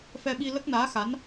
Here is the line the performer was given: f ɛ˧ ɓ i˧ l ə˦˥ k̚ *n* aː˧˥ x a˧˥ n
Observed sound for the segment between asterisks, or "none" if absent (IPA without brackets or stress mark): n